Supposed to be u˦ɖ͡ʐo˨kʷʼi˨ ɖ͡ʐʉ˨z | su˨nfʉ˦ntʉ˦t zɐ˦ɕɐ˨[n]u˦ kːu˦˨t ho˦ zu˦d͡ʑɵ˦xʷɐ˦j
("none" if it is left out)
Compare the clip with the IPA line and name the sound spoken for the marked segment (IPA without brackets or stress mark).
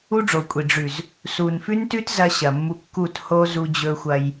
mː